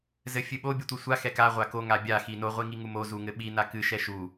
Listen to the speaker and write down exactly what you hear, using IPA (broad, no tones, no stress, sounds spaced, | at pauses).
z ɘ fʲ ɨ ɓ o bʲ ɨ tʷ i sʷ a x ɛ k a ʁʷ a k o ŋ a bʲ a x i n o ʁʷ i ŋ i ŋ u m o z u ŋ ɘ ɓ i n a k ɨ ʃ ɛ ʃ u